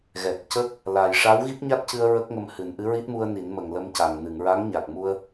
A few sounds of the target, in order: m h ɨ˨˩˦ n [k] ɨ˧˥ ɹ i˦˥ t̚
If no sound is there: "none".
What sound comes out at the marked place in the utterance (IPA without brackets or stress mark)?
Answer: ʔ